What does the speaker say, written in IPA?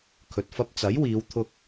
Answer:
kʰ ɵ˨ t̚ f ɐ˧ p̚ t͡s ɐ˨˥ j w iː˨˧ w t̪ʰ ʊ˧ k̚

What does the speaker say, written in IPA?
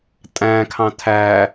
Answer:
tʼ æ̃ kʰ ɑ̃ tʰ æ

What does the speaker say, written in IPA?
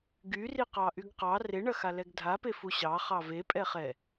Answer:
ɡ y r i q ɑ ʔ y ɡ q ɑ r e ɳ ɐ x a l ɛ ɡ dʱ a p e f u ɕ ɑ χ ɑ v e pʼ ɛ χ ɛ

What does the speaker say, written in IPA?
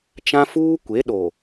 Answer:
t͡ʃ ã˦ f uː˦ kʷ e˨˦ ɗ o˨

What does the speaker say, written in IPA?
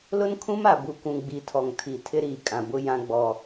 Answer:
l ʊ˦ n kʰ ũ˦ m a˨ b u˨ kʷ ũ˨ ɡ͡b i˨˦ tʰ ɔ˨ ŋ tʰ i˨ tʰ ɪ˦ ɾ iː˨ kʼ ã˨ b ʊ˦ j ã˦ ɡ͡b ɔ˦

